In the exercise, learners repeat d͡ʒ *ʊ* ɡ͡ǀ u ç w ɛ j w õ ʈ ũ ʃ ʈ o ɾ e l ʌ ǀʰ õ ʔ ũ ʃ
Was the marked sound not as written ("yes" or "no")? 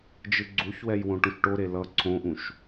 yes